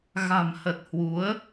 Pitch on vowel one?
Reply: low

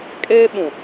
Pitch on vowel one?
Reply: high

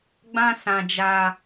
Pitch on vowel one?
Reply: high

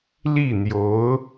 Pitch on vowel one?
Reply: falling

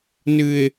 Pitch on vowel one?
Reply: low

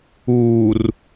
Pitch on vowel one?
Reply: low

